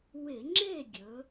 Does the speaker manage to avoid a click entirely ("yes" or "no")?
no